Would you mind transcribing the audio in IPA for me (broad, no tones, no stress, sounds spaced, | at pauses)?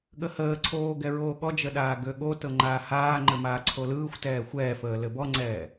ɠ ə h əː ǀʰ oː ɡ ɛ ɹ oː ɠ ɔ d͡ʒ ə ɗ aː ɡ ø ɠ o t ɤ ŋ͡ǃ aː h aː ŋ͡ǃ ɘ m aː ǀʰ o l ɯː xʷ t ɛː xʷ ɛː f əː l ɘ b ɔ ŋ͡ǀ ɛː